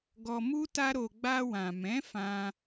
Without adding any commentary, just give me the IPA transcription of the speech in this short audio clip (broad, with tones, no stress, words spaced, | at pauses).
ɡɔ˧mu˦ta˦ɾo˧ ɡ͡ba˧wã˨mɛ̃˨˦fã˧